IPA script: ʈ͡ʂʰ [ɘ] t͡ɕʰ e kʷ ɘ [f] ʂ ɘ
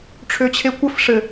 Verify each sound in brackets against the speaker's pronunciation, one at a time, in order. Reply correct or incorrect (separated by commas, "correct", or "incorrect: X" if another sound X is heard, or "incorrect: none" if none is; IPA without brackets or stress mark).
incorrect: ø, correct